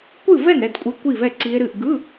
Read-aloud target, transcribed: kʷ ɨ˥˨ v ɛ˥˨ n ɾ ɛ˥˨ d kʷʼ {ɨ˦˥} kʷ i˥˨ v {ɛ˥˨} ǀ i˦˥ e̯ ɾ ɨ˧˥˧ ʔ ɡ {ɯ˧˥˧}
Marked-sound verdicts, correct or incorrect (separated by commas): incorrect, correct, correct